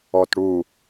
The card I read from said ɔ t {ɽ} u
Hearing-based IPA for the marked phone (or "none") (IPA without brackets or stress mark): ɽ